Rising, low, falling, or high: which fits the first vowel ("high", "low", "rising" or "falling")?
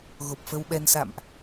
low